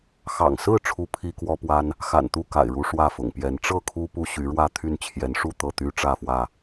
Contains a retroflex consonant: yes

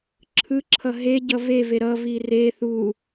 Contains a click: yes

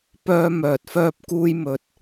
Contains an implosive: no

